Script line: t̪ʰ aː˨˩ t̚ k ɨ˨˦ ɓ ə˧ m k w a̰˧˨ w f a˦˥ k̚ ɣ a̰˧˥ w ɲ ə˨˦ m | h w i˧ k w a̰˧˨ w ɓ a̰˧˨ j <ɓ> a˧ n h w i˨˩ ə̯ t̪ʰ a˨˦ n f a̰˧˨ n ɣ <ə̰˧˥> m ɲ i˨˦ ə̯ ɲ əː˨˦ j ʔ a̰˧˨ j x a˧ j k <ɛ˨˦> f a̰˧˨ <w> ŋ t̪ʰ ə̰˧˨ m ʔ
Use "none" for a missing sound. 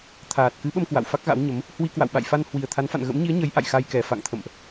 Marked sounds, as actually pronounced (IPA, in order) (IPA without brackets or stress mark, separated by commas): f, ə̰˧˥, ɛ˨˩, none